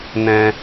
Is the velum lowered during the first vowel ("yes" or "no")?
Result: yes